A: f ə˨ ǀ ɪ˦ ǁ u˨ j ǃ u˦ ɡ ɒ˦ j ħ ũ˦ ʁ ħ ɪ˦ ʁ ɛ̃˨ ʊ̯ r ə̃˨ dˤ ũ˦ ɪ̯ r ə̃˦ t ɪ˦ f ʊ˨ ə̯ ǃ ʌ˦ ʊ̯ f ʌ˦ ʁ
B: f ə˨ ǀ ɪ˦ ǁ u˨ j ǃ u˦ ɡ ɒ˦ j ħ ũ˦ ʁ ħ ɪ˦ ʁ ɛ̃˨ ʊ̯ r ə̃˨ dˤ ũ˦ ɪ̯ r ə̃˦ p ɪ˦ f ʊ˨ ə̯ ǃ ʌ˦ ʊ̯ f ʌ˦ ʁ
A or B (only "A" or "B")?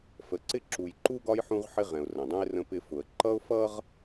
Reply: B